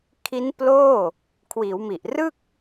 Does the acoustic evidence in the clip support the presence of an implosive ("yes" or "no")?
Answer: no